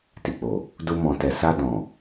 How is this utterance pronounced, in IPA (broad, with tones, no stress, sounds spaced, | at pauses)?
t i˨ k͡p o˨ | d u˧ m ɔ̃˨ t ɛ˨ s a˧ d ɔ̃˨